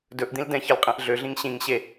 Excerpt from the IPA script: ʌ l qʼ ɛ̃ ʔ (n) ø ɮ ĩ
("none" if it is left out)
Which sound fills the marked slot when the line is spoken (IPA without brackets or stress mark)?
ɮ